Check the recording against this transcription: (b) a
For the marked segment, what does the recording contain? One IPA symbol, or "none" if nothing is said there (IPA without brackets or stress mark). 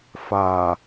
f